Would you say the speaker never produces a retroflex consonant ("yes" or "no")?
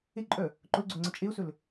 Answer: yes